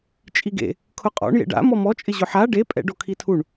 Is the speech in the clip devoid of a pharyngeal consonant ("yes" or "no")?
no